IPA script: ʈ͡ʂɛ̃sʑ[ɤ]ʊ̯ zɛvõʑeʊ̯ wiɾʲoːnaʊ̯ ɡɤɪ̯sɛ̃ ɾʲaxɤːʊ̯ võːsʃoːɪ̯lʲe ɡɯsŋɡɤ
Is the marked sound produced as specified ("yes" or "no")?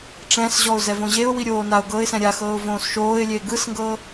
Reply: no